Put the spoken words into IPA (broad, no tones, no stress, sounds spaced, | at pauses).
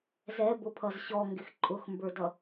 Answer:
z ɛ b ʊ pʰ ʌ z ɕ ɔ ŋ ɡ ɪ x ǃʼ ʊ x m b ə˞ d ʌ